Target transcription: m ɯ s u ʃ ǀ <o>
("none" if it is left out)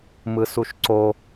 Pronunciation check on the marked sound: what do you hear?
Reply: o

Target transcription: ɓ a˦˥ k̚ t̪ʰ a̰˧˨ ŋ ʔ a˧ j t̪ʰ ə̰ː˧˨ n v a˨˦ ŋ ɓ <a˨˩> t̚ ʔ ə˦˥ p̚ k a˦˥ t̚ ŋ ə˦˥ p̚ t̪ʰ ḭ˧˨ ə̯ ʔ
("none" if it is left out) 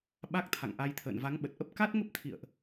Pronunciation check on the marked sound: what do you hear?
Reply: ə˨˩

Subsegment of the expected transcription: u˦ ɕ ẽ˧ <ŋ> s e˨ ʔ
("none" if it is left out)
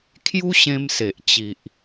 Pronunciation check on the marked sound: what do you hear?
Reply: m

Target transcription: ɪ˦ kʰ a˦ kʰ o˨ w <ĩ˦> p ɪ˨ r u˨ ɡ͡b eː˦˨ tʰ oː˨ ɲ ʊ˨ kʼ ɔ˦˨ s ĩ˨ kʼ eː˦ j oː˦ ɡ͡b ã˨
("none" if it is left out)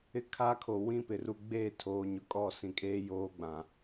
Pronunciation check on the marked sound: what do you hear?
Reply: ĩ˦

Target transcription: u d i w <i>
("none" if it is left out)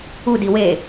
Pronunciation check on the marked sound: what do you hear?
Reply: e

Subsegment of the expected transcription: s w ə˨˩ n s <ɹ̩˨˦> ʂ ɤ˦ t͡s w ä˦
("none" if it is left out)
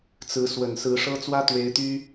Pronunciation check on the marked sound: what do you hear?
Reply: ɹ̩˨˦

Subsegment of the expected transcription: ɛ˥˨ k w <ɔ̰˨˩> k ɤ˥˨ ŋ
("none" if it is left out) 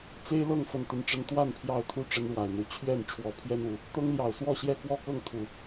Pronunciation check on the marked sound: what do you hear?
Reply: ɔ˥˨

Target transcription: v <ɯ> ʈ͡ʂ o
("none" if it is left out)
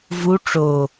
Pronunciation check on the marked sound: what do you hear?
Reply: u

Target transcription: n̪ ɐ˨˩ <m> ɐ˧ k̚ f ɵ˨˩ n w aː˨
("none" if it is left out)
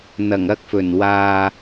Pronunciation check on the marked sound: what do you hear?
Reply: ŋ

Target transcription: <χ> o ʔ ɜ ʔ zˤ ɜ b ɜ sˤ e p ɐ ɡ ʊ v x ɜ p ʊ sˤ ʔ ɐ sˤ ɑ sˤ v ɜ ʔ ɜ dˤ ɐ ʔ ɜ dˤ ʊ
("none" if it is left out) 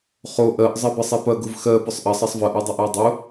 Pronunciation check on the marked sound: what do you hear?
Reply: χ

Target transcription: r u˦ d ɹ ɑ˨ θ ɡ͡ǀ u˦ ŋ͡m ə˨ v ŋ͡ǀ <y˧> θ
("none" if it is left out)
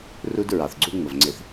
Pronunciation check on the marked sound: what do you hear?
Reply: ɪ˧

